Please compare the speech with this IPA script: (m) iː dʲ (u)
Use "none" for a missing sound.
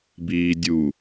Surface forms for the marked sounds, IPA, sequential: b, u

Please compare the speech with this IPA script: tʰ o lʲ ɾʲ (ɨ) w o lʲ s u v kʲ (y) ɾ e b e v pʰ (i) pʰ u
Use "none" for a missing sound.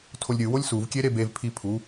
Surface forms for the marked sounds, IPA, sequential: ɨ, e, i

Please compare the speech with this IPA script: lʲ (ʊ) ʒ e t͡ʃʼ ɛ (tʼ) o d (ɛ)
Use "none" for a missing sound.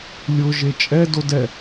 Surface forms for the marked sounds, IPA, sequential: ʊ, d, ɛ

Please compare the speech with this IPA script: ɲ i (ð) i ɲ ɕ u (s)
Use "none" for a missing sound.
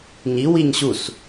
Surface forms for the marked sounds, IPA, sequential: w, s

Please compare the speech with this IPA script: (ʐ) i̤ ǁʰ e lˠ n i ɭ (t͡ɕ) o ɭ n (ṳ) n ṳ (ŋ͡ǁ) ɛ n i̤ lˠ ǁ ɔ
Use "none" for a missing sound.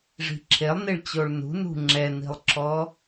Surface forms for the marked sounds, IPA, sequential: ʐ, t͡ɕ, ṳ, ŋ͡ǁ

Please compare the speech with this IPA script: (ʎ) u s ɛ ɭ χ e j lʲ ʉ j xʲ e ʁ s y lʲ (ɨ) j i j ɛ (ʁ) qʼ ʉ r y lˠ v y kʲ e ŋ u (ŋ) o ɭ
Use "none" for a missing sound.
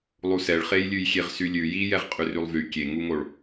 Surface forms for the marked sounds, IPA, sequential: lˠ, ʉ, ʁ, ŋ

